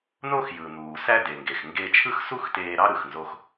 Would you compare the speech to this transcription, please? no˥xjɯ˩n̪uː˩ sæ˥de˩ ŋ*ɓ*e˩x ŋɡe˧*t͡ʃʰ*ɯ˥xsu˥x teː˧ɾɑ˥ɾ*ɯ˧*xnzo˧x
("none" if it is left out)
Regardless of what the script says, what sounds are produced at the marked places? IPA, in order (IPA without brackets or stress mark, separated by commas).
ɡ, t͡ʃʰ, ɯ˩